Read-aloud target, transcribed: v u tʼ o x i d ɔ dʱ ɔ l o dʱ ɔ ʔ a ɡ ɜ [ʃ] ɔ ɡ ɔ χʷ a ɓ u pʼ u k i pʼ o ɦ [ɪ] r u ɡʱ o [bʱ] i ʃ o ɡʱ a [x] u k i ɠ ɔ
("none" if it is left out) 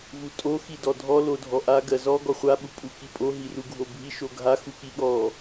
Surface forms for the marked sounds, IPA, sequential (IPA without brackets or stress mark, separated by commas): z, i, bʱ, x